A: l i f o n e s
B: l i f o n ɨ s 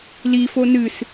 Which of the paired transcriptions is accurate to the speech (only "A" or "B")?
B